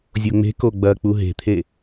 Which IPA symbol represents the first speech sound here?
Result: zʲ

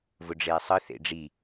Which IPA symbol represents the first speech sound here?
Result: v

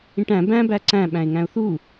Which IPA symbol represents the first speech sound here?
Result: ĩ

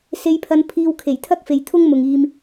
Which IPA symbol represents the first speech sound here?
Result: s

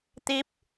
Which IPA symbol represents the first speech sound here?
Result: t̪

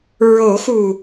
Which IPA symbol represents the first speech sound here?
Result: ɹ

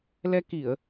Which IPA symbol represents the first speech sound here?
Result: l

